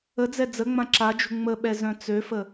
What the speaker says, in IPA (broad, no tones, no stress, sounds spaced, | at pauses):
ə d͡z ɛ d͡z ə ŋ͡m ã ǁ a d͡ʒ ṳ ŋ͡m ə ɓ ɛ z œ̃ t͡s ø f ə